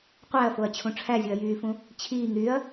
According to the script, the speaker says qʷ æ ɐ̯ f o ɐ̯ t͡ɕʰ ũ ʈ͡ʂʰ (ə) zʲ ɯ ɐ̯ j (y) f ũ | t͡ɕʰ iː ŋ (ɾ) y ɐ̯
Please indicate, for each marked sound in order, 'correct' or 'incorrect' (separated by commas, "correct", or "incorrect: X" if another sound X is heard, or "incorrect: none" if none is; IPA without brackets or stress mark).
incorrect: æ, incorrect: yː, correct